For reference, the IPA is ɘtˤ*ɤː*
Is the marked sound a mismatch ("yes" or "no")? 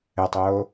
yes